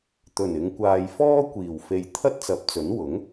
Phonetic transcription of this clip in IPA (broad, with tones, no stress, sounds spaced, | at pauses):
t̪ ɵ˨˩ n ɪ˨˧ ŋ kʷ aː˨ j f ɔː˥ kʷ iː˨˩ w f e˨ j t̪ʰ ɐ˥ t̚ t͡s ɐ˨˥ p̚ t͡s ɵ˨˥ n w ʊ˨˥ ŋ